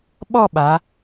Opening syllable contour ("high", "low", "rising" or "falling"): falling